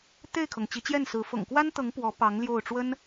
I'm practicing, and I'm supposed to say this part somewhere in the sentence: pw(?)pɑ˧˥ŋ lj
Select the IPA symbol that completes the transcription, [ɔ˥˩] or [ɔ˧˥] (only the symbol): ɔ˧˥